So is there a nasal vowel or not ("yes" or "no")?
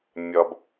no